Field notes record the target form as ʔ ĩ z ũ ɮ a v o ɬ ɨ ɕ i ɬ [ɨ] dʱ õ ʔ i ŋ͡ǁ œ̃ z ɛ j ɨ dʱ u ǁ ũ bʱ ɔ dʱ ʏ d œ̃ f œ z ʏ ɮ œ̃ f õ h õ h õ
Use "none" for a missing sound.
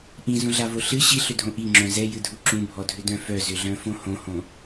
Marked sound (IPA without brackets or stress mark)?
ʏ